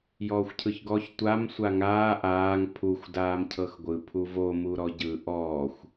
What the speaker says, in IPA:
j ɔː xʷ cʰ ɯ ç ɡ ɔ ç tʷ a m sʷ a ŋ aː ʔ aː ŋ pʰ u xʷ d aː m cʰ ɤ x ɡʷ ɯ pʰ u v o m u ɾ ɔ ɟ ɯ ʔ ɔː xʷ

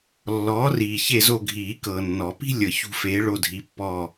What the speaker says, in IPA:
lː ɔː˨˥ r iː˨ ç e˦˨ z o˦˨ ɡʱ iː˨˩˦ k ɤː˨ nː ɔ˨˩˦ p i̤˥ lʲ ɤ˨ ç ṳ˦˨ f eː˨˥ ɭ o˦˨ dʱ i˨˥ pː ɔ˦˨

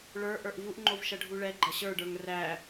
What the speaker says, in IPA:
ɭ ə˞ ʔ ə˞ ʔ v u ʔ ŋ͡ǃ o v ʃ ɐ ɖʱ u ɭ ɛ ɡ͡ǃ ɐ ɕ ə˞ ɖ ə˞ ŋ r æ

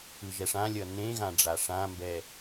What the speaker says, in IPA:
ɯ ʒ ɛ ʂ ã lʲ ʌ n ẽ ɣ ã ɖ͡ʐ a ʂ ã m b ɛ

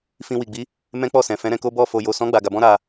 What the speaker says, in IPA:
f ĩ˧ w i˨ ɡ͡b i˨˦ | m ɛ̃˦ k͡p ɔ˦˨ s ɛ̃˨ f ɛ̃˨˦ ɾ ɛ̃˧ k o˦ b ɔ˦˨ f o˨ j o˨ s ɔ̃˨˦ ɡ͡b a˧ ɡ a˧ b ɔ̃˦ ɾ a˧

